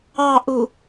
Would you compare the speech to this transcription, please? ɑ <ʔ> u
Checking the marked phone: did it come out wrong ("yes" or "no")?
no